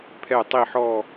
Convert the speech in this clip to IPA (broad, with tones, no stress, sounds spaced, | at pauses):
pʰ ɛ˧˩ tˤ i˧˩ ħ ɔ˧˩